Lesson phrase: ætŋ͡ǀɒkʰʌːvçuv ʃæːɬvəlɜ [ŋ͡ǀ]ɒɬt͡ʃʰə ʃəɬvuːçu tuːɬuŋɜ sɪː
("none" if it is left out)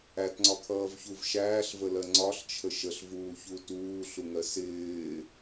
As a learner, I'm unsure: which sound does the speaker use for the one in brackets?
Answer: ŋ͡ǀ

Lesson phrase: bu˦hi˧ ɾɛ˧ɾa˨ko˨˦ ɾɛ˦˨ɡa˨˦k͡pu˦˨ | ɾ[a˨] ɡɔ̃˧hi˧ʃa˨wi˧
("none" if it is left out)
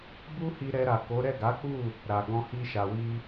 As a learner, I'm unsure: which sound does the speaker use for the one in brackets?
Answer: a˨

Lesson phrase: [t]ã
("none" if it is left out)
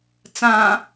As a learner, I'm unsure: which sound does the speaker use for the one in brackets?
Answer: t͡s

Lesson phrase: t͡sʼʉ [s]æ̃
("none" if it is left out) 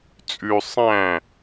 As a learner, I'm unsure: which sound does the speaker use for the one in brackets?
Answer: sˤ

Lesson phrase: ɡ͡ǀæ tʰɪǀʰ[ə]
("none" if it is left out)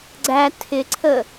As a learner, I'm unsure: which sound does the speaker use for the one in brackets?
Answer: ə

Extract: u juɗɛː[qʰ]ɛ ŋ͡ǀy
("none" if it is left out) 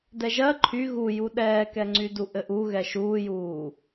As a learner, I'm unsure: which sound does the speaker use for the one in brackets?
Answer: k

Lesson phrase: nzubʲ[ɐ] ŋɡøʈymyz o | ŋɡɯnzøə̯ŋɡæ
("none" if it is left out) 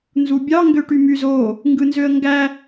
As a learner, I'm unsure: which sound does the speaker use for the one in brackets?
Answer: ɑ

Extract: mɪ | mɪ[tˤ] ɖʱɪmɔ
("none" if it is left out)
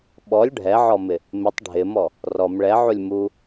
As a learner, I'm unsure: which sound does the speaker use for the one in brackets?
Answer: tˤ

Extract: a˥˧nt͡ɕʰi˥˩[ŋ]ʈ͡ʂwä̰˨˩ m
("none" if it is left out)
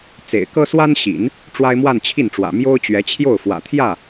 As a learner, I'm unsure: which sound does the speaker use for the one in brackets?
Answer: n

